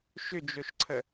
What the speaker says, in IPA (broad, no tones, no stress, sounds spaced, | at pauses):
ʃ ʏ d͡ʒ o ʃ ǀʰ ə